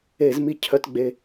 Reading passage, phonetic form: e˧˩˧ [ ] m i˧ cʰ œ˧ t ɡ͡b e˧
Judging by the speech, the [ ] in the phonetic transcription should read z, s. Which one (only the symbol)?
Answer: z